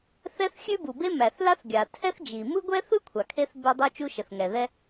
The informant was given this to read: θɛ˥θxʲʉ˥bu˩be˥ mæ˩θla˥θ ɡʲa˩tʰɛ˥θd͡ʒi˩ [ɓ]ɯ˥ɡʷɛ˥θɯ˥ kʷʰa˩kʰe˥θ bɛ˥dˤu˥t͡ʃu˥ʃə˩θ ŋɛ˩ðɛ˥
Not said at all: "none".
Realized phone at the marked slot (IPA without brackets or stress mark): m